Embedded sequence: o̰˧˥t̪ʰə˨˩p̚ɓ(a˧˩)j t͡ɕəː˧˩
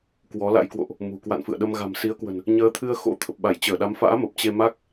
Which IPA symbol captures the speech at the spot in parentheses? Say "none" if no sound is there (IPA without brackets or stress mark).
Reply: a˧˩